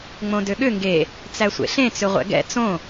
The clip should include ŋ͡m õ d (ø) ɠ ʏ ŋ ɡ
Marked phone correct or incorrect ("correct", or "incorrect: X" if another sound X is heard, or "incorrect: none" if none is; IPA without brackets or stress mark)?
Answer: correct